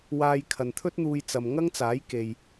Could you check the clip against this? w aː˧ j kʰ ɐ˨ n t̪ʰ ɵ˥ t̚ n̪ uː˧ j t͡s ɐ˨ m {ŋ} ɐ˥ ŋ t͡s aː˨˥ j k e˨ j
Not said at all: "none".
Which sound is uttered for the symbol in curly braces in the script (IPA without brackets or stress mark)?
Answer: ŋ